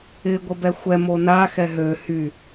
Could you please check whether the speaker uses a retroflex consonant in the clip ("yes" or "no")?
no